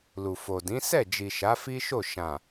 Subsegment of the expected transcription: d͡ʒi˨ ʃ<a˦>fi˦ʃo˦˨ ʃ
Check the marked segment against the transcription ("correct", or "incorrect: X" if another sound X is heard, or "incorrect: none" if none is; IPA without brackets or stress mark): incorrect: a˨˦